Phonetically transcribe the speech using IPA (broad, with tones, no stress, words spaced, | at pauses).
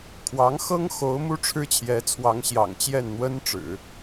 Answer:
kʰwɑ˧˥ŋxɤ˥ŋ xo˧˥ʊ̯mu˥ ʈ͡ʂʰɻ̩˥t͡ɕʰjɛ˧˥t͡sʰwɑ˧˥ŋɕjɑ̰˨˩ŋ t͡ɕjɛ˥˩nn̪wə˥nʈ͡ʂɻ̩˨˩˦